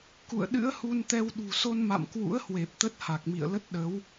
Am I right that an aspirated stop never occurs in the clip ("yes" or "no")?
yes